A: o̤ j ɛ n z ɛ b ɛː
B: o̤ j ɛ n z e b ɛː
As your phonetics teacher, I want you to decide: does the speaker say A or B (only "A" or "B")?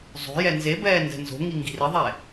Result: B